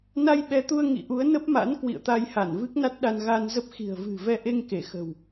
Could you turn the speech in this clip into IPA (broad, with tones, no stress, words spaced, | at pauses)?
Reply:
na˧jɓɛ˨˦t̪u˧ə̯ ŋḭ˧˨ʔu˨˦ə̯nə˦˥p̚ma̰˧˥n kwḭ˧˨ə̯t̪a˧jha˧˩n vɨ˦˥k̚na˦˥t̚ɗa˧n ɣa˧nzə˦˥p̚ xi̤˨˩ə̯vɨ̤˨˩vɛ˧ ʔe˧ŋke˧˩xə̤˨˩w